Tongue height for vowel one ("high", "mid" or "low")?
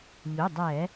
high